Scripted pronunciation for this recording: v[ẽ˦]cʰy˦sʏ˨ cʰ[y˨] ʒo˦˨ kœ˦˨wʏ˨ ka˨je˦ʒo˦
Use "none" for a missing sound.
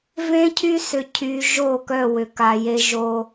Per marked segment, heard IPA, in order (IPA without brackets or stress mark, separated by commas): ẽ˦, y˨